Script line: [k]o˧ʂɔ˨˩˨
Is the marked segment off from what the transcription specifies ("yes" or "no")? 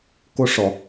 no